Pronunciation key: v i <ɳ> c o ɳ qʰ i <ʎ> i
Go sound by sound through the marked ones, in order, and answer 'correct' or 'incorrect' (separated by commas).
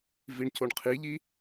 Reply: correct, correct